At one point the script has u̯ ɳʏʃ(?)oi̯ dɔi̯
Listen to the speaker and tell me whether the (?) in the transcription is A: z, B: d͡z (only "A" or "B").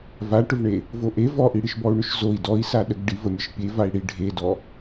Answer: A